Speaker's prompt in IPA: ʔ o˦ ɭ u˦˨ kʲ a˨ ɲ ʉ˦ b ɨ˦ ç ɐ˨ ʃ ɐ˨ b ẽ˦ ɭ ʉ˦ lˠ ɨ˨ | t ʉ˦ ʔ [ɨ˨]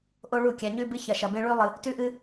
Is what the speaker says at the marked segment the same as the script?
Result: no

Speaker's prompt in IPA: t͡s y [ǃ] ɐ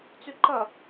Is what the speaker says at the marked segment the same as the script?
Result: yes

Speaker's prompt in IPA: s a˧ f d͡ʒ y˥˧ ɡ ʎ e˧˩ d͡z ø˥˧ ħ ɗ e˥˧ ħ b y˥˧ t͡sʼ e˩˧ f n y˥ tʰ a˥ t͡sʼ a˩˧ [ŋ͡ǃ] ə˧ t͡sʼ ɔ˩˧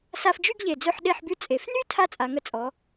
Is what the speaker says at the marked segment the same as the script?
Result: no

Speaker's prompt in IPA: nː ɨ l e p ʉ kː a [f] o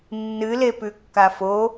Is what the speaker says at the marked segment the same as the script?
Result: yes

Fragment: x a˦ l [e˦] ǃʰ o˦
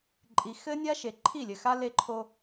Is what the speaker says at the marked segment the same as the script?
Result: yes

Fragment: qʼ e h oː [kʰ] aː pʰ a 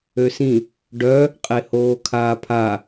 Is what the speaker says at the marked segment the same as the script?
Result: yes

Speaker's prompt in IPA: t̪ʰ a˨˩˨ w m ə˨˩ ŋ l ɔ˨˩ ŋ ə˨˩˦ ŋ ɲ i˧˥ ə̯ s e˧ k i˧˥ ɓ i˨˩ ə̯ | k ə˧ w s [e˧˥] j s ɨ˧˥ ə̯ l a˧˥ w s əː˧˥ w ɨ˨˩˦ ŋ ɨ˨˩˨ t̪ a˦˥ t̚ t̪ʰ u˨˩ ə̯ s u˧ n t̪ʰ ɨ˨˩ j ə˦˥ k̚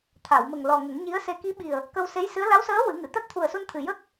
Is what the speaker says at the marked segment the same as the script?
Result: yes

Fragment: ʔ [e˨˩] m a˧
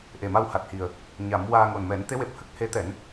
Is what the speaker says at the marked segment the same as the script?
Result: yes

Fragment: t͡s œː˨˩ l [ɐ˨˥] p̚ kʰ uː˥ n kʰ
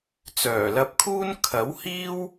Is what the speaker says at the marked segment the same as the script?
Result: no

